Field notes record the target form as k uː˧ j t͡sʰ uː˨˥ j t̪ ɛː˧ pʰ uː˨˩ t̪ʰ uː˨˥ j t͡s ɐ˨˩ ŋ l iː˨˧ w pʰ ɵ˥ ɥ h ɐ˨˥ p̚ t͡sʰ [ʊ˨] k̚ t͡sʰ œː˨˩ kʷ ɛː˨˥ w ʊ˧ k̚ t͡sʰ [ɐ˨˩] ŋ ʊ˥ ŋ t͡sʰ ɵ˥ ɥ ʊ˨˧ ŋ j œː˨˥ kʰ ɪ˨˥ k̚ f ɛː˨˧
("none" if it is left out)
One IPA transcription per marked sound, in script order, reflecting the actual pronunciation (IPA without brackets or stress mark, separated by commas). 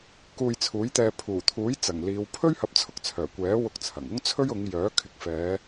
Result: ʊ˧, ɐ˨˩